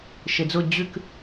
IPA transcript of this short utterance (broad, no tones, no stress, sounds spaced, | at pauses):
ʃ e d͡z ʊ d͡ʑ ʉ k